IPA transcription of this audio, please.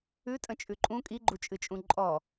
ʉ tʼ ə̃ t͡ʃʼ ʉ ǃʼ ũ kʼ i ɡ͡ǃ u t͡ʃʼ ɨ t͡ʃʼ ũ ǃʼ ɔ

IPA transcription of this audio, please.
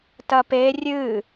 t ɐ p e rʲ ɨ

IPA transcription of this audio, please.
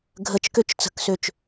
ɡʱ ə t͡ʃ k ø t͡ʃ t͡s ə̤ k s ø t͡ʃ

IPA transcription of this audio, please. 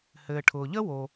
h ɘː˩ ʈʰ ʊː˩ ʎ ə˥ w o˩

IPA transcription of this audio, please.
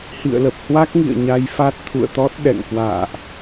h ḭ˧˨ ə̯ l ə˨˩ p̚ h w a˦˥ k̚ ŋ ḭ˧˨ ə̯ ɲ a˧ j f a˦˥ t̚ t̪ʰ ṵ˧˨ ə̯ t̪ ɔ˦˥ t̚ ɗ ɛ̰˧˨ ŋ k w a̰ː˧˨ ʔ

